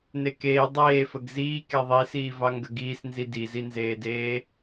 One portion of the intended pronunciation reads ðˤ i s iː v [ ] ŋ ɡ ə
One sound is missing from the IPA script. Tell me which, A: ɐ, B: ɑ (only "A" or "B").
B